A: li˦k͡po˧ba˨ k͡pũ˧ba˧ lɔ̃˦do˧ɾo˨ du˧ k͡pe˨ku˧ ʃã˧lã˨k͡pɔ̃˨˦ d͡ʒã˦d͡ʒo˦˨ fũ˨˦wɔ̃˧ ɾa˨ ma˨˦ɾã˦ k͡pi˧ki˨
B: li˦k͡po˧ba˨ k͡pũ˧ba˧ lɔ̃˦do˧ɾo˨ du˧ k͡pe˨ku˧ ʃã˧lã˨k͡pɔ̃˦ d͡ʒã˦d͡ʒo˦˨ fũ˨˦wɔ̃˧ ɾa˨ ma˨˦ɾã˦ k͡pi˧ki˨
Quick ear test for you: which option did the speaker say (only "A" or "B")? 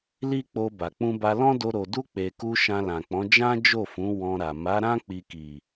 A